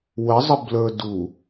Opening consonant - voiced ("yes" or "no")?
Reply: yes